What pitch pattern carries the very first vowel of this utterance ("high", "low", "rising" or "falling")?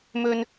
high